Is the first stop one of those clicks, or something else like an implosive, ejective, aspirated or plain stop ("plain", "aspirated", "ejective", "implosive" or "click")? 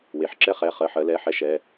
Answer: click